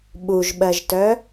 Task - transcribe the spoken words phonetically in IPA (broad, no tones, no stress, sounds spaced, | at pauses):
ɓ u ʒ ɓ ɜ ʒ t œ